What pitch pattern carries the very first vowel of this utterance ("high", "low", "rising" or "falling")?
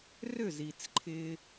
falling